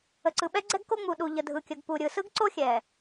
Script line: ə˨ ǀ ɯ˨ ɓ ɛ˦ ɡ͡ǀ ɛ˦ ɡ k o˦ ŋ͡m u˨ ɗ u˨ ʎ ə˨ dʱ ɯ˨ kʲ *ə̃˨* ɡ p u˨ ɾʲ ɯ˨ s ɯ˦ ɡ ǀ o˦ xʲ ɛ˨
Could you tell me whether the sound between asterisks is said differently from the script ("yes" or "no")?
yes